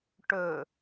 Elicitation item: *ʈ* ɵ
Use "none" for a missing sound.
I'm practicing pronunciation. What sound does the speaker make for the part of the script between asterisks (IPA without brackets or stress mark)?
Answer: ʈ